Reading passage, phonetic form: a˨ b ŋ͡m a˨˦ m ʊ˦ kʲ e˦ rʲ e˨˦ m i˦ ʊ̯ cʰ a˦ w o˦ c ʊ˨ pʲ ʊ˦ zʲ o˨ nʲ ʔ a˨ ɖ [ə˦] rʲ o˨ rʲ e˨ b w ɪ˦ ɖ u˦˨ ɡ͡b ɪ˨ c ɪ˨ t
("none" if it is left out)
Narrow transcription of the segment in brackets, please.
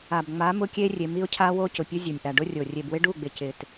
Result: ʊ˦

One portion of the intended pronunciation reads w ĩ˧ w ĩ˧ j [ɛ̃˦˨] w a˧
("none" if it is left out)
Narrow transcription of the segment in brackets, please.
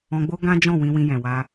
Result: ɛ̃˨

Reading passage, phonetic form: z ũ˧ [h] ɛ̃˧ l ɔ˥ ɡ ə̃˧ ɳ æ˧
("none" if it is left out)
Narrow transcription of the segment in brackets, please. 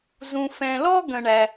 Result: f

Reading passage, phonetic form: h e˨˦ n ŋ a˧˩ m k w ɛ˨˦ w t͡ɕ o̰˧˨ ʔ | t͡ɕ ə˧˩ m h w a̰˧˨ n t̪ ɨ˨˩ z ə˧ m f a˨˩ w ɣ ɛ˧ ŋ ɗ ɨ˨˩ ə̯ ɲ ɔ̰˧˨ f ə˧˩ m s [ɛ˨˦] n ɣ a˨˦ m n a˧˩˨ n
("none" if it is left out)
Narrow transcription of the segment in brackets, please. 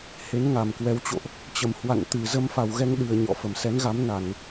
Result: ɛ˨˦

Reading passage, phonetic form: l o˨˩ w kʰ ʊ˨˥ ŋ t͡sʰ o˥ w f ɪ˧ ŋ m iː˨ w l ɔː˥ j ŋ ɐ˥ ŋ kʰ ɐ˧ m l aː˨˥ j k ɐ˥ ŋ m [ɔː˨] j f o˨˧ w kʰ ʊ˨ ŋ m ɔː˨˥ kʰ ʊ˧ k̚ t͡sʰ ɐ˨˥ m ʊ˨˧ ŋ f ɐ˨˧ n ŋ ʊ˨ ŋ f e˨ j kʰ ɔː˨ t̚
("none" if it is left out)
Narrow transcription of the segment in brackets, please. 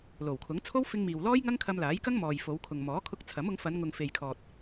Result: ɔː˨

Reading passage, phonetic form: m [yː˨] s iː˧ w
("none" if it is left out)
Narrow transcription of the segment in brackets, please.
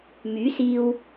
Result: yː˨˥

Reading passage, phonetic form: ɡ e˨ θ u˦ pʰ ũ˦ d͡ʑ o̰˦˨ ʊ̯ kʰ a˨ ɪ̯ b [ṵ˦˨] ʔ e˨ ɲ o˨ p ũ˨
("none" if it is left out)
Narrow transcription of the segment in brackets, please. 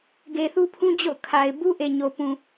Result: u˦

